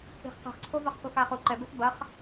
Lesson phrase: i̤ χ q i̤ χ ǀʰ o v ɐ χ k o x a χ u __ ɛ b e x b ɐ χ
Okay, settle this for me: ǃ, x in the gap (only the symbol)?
ǃ